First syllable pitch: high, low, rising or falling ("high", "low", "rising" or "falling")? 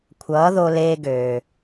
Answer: rising